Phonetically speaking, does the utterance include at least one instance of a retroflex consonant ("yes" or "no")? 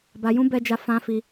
no